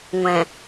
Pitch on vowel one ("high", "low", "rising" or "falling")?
low